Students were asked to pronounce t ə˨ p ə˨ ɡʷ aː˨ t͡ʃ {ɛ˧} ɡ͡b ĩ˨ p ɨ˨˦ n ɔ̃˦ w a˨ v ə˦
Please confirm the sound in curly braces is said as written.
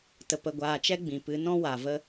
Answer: yes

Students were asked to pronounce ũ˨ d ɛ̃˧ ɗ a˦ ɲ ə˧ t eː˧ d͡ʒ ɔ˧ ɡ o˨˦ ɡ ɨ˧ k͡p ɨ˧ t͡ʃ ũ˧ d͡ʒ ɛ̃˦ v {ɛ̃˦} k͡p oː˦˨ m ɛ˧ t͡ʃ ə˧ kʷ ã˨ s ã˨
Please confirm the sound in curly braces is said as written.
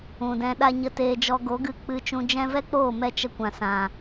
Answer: no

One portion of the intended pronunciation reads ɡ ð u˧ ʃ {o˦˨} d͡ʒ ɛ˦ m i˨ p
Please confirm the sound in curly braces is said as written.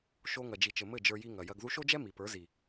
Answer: no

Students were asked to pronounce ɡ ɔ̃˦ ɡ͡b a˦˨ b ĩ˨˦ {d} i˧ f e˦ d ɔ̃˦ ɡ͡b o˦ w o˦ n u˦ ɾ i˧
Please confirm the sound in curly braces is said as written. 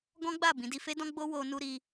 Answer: yes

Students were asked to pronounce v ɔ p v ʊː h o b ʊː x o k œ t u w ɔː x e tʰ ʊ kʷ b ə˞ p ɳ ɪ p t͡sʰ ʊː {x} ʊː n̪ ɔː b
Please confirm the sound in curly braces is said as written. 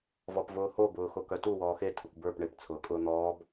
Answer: no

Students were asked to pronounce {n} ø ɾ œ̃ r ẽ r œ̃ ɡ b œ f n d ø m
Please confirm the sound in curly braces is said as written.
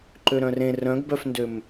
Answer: no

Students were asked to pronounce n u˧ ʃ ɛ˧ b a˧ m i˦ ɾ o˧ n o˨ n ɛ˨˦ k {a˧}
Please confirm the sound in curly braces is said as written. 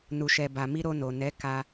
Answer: yes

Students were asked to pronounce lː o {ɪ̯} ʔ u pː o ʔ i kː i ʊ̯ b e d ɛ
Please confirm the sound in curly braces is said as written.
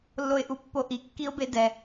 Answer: yes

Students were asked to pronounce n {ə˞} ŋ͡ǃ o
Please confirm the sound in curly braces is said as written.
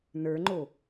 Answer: yes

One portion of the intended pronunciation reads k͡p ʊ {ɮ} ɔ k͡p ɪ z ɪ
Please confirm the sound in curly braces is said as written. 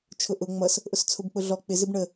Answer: yes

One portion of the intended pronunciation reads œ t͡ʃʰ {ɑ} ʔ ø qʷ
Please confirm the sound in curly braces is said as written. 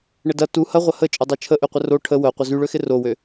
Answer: no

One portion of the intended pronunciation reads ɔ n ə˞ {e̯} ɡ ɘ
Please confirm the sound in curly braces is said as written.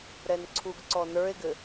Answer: yes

